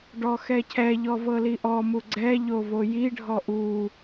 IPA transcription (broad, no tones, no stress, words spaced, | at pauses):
ɖɔxɛcʰɛʎɔ vɤliʔɔmu ɡ͡ǀɛʎo vojiɖʱɔ ʔu